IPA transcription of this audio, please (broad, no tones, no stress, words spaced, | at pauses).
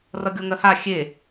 rʌɡʲoŋɜha xʲe